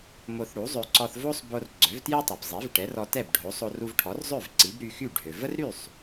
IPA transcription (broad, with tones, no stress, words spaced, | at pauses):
mo˧θɽu˩˥zˤø˧ ǀɔ˧θvo˥sˤbo˧r ɡ͡ǀœ˩˥vtje˥tˤœ˩bzˤi˩˥v ʈɛ˩˥rɔ˧tɛ˥˩b ɖʱo˩˥ sˤo˧ru˧vʈʰɔ˩˥rzˤø˥˩v ǀi˩˥bɾy˧xy˥˩ ɖʱø˩və˥rɾy˥˩sˤ